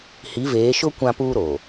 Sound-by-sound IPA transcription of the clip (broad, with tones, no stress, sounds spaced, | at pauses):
h i˨˦ v eː˨˦ ʃ ʊ˦ kʷ ã˦ p uː˦ ɾ oː˨